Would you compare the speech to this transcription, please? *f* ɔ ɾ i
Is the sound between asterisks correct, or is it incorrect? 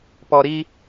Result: incorrect